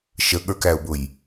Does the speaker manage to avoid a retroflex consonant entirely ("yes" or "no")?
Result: yes